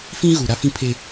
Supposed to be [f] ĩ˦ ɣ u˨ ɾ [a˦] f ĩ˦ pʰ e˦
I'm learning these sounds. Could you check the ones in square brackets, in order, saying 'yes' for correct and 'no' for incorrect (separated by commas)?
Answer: yes, yes